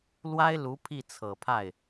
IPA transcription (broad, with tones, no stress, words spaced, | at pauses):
lwa˥ɪ̯lu˧˥ pʰi˥˩t͡sʰɤ˨˩pʰa˥˩ɪ̯